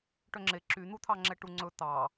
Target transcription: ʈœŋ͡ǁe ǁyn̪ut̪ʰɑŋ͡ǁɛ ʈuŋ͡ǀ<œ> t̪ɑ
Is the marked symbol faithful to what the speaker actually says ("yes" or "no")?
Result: no